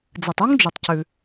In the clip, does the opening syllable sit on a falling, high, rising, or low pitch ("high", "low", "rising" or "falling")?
low